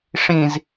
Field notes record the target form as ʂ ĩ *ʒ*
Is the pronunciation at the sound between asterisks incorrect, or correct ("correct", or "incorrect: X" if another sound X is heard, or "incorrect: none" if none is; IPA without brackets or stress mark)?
incorrect: z